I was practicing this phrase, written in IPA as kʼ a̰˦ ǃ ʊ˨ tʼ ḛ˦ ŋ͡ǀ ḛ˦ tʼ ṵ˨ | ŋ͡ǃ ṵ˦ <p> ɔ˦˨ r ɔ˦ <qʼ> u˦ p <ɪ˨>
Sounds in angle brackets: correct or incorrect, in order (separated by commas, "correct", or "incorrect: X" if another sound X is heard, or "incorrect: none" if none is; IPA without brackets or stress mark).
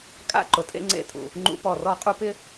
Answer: correct, correct, incorrect: ɪ˦